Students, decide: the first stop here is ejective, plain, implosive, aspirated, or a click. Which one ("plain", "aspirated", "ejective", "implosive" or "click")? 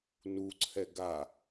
click